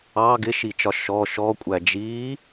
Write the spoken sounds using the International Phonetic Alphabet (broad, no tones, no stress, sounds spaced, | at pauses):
ɑ ɡ ɪ ʃ i t͡ʃ ɒ ʃ ɔ ʃ ɔ kʷʼ æ d͡ʒ iː